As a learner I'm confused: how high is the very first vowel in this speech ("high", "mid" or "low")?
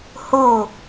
mid